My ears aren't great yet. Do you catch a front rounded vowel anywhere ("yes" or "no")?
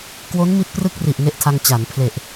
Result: no